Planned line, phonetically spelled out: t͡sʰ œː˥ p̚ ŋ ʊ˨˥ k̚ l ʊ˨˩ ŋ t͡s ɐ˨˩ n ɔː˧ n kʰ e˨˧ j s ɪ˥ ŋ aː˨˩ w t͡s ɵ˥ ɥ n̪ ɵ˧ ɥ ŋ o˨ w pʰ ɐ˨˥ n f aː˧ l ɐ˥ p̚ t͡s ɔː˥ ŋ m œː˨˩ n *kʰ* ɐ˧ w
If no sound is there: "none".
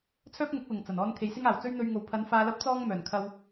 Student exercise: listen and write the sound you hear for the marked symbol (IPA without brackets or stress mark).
kʰ